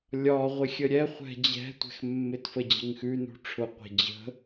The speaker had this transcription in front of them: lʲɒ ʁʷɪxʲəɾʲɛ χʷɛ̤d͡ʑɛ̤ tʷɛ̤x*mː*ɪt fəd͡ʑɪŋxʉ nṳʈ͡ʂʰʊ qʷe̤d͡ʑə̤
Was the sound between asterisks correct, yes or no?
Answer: yes